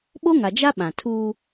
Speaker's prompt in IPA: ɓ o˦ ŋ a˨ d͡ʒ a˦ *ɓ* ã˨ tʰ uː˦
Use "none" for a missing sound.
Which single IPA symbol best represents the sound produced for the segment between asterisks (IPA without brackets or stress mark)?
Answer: ɓ